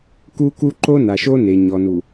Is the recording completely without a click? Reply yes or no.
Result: no